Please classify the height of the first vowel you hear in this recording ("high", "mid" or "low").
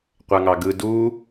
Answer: low